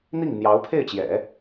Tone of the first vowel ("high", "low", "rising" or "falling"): falling